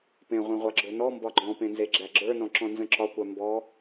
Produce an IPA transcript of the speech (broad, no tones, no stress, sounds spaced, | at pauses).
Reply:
p ẽ ʁʷ ẽ ʁʷ a ɡ͡ǁ ɵ n ɔ m b ɒ ɡ͡ǃ ɔ̃ p ẽ n z e ɡ͡ǁ æ ɡ͡ǁ ə˞ n ɔ̃ ǁ ɔ̃ n z ə̃ ǁ ɒ kʷ a m b ɔ